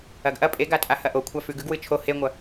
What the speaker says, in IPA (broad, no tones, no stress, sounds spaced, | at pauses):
ɐ ɡ ʔ ɐ pʼ e ɡ a tʼ a h ɐ ʔ o kʷʰ a f ʉ ɡ ʉ ɡ w ɨ t͡ʃʰ o h e ŋʷ ɐ